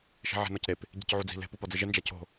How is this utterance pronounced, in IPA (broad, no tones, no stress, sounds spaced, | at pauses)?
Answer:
ʃ i̤ ʕ e̤ n ɒ c ɾ e p | ɟ i̤ c ʕ u d͡z i̤ l e̤ p u p ɒ d͡z i ʒ e n d͡ʒ æ cʰ o̤